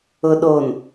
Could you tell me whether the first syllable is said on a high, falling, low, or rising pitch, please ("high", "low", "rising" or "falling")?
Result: low